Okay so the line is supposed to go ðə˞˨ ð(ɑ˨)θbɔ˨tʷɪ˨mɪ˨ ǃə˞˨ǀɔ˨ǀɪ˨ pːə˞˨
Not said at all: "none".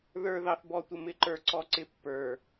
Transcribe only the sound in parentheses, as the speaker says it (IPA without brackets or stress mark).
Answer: ɑ˨